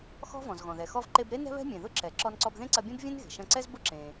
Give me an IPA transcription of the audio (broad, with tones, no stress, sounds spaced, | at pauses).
x ɔ̤˥ v ɔ̃˩ z ɣ ɔ̃˩ ð ɛ˩ x ɔ˧ v ǃ e˧ b ɾ e˥ n ɛ̤˥ β ɛ̤˥ mʲ ẽ˩ ð ʊ˥ ǁ ɛ˩ ǁ ɔ˧ n ǀ ɔ˧ b ð ẽ˥ ǀ ɐ˧ bʲ ẽ˥ b vʲ ẽ˥ n ɣ e̤˩ ʃ ɐ̃˧ ǀ ɛ˥ z b ʊ˥ ǁ ẽ˩